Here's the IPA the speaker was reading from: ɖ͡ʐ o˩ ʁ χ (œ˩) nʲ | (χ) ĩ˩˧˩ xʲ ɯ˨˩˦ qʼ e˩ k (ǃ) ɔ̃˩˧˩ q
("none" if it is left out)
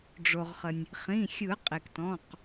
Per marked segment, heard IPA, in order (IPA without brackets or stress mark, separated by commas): ə˩, χ, t